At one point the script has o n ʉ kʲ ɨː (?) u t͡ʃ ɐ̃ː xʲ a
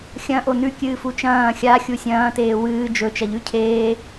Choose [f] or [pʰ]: f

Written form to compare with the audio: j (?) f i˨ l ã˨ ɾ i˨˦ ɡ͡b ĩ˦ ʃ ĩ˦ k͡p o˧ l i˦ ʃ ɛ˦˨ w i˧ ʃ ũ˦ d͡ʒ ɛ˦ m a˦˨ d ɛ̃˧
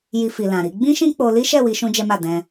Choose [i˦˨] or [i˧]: i˧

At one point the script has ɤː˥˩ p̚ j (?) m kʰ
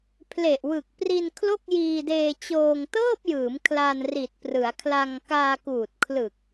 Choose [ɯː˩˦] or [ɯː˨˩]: ɯː˩˦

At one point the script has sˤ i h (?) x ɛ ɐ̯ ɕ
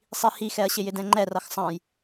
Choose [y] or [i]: i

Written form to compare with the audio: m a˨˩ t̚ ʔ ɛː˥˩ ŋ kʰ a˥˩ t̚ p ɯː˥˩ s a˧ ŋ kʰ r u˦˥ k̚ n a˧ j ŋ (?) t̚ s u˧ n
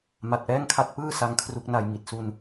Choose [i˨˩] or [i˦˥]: i˨˩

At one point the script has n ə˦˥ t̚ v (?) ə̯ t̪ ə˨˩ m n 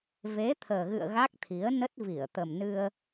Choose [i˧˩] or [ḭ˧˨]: i˧˩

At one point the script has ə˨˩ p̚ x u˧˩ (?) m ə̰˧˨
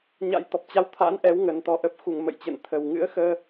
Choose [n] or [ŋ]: ŋ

